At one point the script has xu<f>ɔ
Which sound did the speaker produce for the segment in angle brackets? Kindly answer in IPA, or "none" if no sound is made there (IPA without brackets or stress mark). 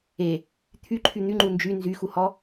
h